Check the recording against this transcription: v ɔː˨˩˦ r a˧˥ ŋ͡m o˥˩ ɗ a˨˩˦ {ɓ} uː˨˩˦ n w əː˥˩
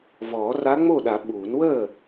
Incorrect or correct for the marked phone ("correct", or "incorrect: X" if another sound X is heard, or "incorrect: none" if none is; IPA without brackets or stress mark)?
correct